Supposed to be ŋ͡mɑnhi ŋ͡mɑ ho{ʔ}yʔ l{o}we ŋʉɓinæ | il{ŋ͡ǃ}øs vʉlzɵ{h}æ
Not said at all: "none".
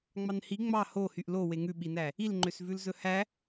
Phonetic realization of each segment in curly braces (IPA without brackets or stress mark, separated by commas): h, o, ŋ͡ǃ, h